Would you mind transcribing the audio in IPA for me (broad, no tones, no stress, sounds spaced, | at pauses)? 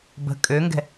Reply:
b ə̤ kʼ ø ŋ ɡ ɛ̤